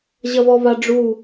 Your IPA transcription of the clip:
ʑ ɐ β ɔ β a ɖ͡ʐ u

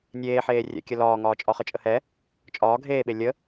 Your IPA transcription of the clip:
nʲ eː ħ eː rʲ ɛ̰ kʲ ə l ɒː ŋ ɒː t͡ʃʼ ɒ χ ə t͡ʃʼ ə h ɛ | t͡ʃʼ ɒː ɡʱ eː ɓ e lʲ ə

